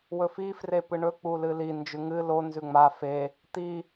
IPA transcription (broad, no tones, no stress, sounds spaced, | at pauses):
w ɵ f i f r e p ɨ ɳ ɵ k͡p u l ɨ l i n d͡ʒ ʉ ŋ ɨ l o n z ʉ ŋ͡m a f e | t̪ i